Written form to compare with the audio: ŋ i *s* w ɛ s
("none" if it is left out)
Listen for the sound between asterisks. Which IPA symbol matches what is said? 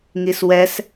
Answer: s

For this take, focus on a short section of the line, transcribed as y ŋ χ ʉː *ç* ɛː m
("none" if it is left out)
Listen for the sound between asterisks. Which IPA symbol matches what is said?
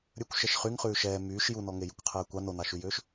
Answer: ʃ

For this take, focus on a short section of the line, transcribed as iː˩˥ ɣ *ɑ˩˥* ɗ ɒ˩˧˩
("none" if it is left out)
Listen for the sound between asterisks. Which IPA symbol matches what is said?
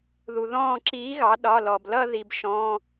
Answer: ɑ˩˥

